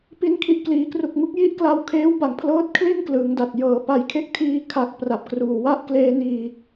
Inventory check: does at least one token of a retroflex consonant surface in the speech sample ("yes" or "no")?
no